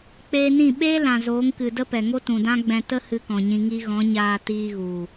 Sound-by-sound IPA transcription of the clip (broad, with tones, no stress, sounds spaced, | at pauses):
k͡p eː˧ n ĩ˦˨ ɓ eː˦ l ã˨ z oː˨˦ ŋ k ɨ˨ d ə˦ p ɛ˨ ŋ o˦ t ũ˨ d ã˦ ɡ͡b ɛ̃˧ t ə˦ h ɨ˧ k ɔ̃˨ ɲ ĩ˧ ŋ i˧ ɣ ɔ̃˨˦ ɲ aː˧ t iː˧ ɣ u˨